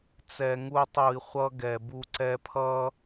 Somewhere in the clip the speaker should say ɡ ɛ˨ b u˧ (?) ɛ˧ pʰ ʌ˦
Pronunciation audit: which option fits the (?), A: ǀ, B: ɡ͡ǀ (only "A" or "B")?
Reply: A